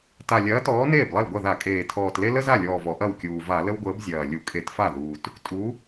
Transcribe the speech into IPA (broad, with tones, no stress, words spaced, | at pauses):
ta˨˩lʲɐː˨˥ tɔː˨˥neː˥˩blˠɐ˥˩lɡʷɐ˥˩ ða˧˩˧kʼeː˨˩ tʰɔː˨˩tle˥ lə˥za˥˩lʲɔː˨˩vɔ˧˩˧ ʔɐ˥˩wkʲuː˨˩ va˧˩˧lə˥wɡʷəː˨˥b zʲɐː˨˩ lʲu˧˩˧kʼe˧˩˧tfa˥˩ðuː˨˩t | tʼu˨˥